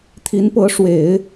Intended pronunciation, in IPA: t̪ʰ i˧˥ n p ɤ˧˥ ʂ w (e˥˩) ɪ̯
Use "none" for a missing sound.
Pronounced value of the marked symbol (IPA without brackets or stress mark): e˨˩˦